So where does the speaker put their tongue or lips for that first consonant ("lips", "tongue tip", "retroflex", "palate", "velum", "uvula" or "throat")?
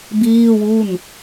lips